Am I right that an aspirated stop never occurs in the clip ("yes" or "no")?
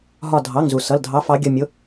yes